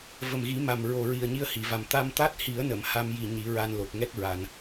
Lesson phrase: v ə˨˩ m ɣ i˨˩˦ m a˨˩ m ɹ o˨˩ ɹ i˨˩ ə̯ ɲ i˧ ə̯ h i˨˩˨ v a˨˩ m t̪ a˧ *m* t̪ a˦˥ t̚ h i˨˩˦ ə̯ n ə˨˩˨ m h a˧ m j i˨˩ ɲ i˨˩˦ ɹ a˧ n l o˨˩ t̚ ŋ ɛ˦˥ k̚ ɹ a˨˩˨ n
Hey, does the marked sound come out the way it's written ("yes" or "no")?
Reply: yes